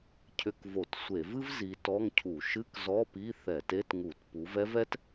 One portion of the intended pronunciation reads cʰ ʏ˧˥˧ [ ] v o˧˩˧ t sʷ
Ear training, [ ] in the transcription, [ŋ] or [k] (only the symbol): k